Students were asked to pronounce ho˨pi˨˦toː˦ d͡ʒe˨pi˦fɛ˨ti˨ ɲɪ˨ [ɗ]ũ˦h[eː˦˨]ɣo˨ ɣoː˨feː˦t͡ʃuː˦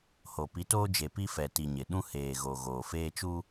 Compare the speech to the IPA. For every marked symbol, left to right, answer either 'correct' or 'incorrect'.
correct, incorrect: eː˨

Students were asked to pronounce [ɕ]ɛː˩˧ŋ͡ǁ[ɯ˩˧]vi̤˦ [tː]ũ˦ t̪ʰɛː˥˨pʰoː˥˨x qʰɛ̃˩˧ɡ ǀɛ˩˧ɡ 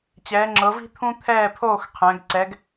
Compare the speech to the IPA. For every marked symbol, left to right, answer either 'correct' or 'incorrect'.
incorrect: t͡ɕ, incorrect: ɤ˩˧, incorrect: t̪ʰ

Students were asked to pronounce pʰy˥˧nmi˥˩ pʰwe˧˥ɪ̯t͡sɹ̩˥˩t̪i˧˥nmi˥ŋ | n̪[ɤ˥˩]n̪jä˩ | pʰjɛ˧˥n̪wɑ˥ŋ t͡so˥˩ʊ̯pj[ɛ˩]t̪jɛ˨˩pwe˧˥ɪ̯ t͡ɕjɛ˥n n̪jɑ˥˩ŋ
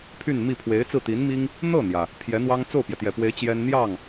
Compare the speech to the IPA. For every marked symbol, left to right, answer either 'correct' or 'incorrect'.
correct, correct

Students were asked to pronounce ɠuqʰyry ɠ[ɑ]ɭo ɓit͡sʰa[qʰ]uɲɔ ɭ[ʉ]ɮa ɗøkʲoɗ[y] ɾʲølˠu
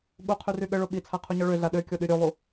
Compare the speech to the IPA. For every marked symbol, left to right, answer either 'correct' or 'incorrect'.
incorrect: ə, correct, incorrect: ø, correct

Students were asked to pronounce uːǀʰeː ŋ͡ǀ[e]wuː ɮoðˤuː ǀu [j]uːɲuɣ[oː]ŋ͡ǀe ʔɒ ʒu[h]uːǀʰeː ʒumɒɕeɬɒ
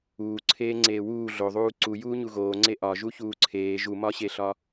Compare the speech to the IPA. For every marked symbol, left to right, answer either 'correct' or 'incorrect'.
incorrect: eː, correct, correct, incorrect: ç

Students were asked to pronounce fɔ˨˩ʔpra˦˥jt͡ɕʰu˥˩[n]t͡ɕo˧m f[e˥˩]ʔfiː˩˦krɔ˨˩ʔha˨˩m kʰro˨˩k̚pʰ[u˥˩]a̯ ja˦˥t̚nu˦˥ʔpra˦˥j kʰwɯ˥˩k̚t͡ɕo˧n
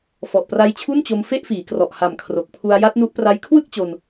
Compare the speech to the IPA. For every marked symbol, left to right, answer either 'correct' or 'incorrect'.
correct, correct, incorrect: u˧

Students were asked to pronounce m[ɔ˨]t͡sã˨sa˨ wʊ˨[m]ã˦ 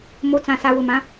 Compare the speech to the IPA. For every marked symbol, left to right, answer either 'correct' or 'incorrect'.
incorrect: o˨, correct

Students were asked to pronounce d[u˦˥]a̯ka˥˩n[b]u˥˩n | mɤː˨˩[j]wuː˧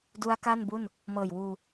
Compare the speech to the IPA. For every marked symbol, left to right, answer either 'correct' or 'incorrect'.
correct, correct, correct

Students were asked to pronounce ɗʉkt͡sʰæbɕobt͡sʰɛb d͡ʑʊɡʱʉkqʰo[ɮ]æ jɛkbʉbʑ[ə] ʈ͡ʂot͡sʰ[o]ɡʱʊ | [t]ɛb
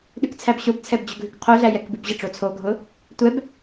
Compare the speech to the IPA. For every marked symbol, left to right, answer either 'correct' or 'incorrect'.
correct, correct, correct, incorrect: tʷ

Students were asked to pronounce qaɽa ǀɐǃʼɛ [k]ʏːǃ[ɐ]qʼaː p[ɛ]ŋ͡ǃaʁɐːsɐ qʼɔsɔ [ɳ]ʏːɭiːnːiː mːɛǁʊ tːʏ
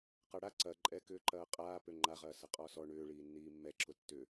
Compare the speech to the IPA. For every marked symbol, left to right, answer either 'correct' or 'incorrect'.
correct, incorrect: ɐː, incorrect: ø, correct

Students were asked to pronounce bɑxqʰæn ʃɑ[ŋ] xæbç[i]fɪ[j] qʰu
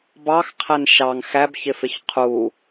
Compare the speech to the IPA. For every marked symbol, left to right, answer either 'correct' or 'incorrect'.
correct, incorrect: ɪ, incorrect: ç

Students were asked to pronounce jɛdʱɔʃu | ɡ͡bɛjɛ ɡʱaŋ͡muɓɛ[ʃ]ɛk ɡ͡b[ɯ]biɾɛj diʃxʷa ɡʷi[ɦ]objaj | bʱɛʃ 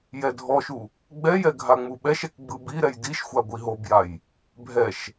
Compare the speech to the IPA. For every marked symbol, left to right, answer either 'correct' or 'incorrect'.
correct, correct, correct

